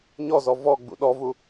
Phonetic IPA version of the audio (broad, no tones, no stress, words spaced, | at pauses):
ɲɔzɔ vɔɡ͡bṵ ɗɔvu